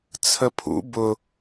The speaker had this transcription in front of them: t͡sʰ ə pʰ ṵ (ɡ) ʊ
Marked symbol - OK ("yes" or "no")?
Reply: no